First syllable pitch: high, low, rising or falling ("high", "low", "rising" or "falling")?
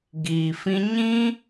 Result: low